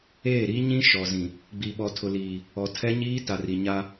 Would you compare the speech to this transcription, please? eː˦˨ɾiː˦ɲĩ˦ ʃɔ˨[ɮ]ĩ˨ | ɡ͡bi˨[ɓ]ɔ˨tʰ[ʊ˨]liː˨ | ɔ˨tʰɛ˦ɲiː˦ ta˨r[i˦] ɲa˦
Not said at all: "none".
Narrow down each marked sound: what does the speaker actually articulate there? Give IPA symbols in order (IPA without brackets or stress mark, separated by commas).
z, ɓ, ʊ˨, i˨